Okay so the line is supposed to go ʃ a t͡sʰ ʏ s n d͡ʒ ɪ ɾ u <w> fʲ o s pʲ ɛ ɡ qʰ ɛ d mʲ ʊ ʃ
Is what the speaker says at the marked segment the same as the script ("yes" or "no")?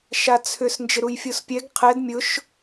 no